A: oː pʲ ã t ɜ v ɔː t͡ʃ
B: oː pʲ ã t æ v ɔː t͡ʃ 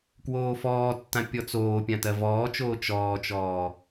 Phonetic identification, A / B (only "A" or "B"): A